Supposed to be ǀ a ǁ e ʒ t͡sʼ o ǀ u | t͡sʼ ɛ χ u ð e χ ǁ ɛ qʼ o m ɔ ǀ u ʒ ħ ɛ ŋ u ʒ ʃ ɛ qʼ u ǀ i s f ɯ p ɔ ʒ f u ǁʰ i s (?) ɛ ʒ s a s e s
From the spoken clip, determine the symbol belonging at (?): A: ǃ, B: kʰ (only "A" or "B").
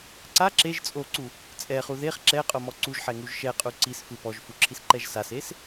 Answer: A